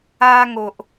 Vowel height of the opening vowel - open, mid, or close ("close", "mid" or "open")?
open